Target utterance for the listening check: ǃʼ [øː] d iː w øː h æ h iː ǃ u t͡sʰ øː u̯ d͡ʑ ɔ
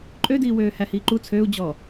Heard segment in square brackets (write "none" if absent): ø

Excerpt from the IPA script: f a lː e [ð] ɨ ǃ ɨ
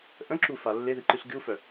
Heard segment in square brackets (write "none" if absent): ð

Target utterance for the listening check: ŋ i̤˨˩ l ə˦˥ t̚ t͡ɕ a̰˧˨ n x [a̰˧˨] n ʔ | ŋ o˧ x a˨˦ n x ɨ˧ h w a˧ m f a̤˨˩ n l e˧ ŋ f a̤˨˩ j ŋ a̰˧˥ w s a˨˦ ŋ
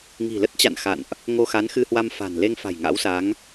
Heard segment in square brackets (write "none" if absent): a̰˧˨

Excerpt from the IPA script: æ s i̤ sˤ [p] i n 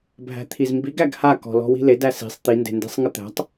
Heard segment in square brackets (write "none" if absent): t̪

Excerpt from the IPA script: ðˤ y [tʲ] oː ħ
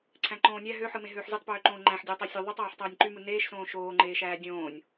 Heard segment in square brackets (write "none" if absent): tˤ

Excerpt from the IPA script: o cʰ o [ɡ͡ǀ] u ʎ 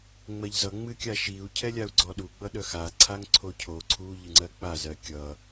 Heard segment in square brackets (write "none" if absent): ǀʰ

